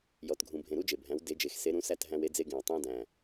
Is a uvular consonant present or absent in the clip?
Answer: absent